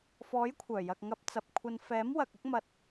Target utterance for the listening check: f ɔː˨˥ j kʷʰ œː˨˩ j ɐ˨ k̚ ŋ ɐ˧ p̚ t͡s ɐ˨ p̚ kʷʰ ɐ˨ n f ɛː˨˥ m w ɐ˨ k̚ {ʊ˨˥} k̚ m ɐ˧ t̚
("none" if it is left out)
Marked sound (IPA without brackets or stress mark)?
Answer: ʊ˥